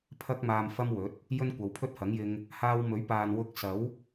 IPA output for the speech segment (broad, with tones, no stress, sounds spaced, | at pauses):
pʰ ɐ˥ k̚ m aː˧ m f ɐ˥ m w ɵ˨˥ t̚ | j ɵ˥ n kʷ ɐ˨˧ w pʰ ɵ˥ t̚ h ɐ˨˥ ŋ j ɪ˧ ŋ | h aː˧ w m ɵ˨˥ ɥ p aː˨ n w ʊ˥ k̚ s ɐ˨˥ w